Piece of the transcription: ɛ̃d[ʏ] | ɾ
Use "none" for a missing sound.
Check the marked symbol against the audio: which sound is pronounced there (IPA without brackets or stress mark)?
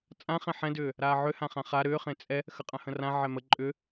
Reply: ʏː